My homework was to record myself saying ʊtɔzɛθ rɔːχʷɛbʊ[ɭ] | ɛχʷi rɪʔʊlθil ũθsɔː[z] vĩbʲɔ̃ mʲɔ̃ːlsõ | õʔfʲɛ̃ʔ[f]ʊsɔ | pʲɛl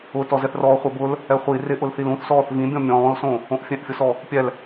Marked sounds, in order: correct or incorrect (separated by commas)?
incorrect, incorrect, incorrect